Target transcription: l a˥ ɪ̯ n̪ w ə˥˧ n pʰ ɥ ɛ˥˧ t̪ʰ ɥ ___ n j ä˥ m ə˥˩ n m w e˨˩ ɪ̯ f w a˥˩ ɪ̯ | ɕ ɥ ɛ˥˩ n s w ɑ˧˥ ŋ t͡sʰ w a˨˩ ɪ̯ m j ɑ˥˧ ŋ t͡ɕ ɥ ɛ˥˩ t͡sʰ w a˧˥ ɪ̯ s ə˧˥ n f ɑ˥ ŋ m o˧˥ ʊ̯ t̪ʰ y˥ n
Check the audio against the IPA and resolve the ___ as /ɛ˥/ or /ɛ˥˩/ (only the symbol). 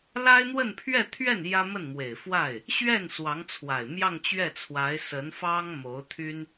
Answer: ɛ˥˩